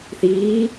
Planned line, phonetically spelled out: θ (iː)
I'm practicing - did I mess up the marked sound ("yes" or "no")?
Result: no